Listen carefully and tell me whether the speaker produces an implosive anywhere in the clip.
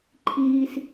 no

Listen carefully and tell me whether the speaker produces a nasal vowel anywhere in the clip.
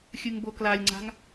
no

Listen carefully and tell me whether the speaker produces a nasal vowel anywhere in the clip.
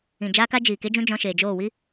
yes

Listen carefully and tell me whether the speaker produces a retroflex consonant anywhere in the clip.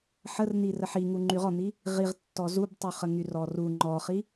no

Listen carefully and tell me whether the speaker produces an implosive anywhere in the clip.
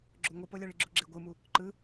no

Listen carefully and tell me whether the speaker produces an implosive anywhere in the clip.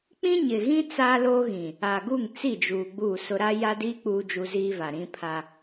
no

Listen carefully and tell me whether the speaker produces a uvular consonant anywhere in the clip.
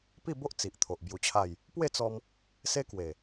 no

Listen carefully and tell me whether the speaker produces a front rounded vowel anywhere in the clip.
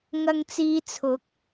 no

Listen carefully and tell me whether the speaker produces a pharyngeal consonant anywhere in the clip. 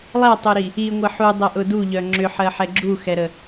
yes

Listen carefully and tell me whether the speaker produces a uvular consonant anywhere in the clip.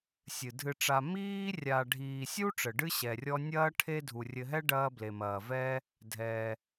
no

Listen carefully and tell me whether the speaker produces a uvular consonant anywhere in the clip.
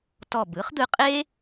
yes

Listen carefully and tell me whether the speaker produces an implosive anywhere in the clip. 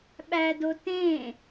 yes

